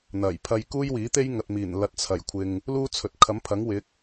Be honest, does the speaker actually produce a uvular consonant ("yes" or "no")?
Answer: no